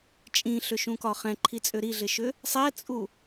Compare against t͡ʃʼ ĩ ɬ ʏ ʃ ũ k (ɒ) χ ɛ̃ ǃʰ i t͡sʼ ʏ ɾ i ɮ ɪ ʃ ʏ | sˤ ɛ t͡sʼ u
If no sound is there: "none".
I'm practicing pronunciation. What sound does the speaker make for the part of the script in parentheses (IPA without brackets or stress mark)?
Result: ɒ